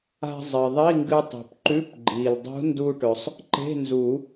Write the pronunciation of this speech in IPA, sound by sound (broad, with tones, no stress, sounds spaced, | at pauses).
a̤˧ zˤ ɨ˩ ðˤ i˧˥˧ ŋ ɡ ɨ˧ tˤ ṳ˩ p ǃ ʉ˧˥˧ p ɡ͡ǃ i˩ l dˤ ṳ˧˥ n d u˧ ʈ ɵ˩ sˤ | ǃ e̤˧˥˧ n z u˨˩˦